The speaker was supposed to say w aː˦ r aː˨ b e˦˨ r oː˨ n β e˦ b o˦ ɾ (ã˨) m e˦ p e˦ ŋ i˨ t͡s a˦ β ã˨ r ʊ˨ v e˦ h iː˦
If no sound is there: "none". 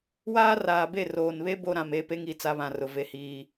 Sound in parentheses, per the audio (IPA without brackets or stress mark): ã˨